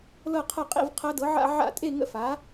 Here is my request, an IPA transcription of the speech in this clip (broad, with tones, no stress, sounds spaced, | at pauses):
l ɤ˥˧ qʰ ɐ˥˧ qʼ ḭ˥˧ v qʰ ɐ˦˥ d ɤ˨˥ ʕ a̰˥˧ ʕ a̰˥˧ tʼ e˥˧ ŋ ə̰˦˥ f a˨˥